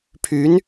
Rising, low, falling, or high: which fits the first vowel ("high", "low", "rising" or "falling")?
rising